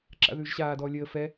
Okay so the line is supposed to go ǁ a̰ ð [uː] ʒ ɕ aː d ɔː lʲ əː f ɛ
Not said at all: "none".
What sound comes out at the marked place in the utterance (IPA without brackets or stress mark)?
ʉː